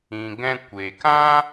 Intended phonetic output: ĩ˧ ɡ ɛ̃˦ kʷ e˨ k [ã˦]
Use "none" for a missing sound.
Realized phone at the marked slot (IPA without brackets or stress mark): ã˦